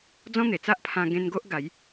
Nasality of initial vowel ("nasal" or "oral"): nasal